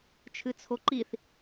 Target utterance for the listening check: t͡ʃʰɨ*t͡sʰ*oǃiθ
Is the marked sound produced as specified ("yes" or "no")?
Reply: yes